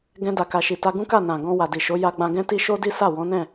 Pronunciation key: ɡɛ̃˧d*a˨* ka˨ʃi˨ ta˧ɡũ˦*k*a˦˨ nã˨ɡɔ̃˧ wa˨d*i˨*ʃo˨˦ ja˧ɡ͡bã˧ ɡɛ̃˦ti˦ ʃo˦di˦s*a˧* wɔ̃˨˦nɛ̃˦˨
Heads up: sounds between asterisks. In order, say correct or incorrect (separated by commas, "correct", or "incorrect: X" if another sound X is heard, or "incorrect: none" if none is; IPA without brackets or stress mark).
correct, correct, correct, incorrect: a˦˨